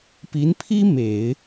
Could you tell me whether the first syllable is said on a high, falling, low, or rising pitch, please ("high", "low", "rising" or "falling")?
rising